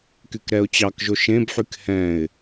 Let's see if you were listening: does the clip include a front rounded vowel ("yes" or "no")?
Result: yes